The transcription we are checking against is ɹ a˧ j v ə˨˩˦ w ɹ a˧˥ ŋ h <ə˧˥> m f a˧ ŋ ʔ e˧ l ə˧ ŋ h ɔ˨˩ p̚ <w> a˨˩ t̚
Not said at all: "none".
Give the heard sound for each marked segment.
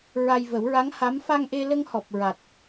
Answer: a˧˥, ɹ

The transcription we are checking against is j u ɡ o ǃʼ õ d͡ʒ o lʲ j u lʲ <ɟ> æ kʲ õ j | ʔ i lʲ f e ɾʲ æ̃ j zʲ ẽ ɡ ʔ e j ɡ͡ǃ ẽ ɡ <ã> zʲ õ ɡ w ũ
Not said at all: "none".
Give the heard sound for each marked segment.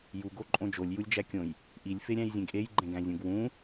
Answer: d͡ʒ, æ̃

